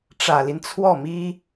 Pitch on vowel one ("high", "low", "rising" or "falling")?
low